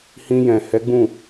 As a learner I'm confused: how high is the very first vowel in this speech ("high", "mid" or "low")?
high